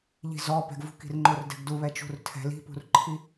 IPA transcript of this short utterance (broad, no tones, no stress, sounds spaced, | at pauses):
ʎ i̤ z ɔ p ɛ̤ ɡ v ṳ k i̤ r ŋ͡ǃ o r d ɛ̤ ɡ d u β ɛ t͡ʃ ṳ r tʰ ɛ̤ l i̤ p ṳ r ǃʰ i